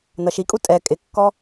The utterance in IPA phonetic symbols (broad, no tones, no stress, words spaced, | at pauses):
nʌʃikʼu tʼɛ kʼɪkːɔ